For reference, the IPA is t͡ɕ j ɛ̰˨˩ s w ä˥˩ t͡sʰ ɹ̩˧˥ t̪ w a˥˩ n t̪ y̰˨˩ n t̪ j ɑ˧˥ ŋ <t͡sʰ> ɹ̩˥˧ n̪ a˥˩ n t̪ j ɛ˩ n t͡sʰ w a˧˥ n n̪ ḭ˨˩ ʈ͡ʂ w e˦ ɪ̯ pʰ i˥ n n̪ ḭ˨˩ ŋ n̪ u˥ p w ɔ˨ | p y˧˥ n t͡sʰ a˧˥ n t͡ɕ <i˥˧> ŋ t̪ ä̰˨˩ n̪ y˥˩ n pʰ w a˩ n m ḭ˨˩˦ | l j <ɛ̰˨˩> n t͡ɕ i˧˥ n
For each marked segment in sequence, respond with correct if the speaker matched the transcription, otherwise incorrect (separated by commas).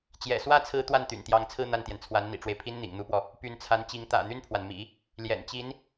correct, incorrect, correct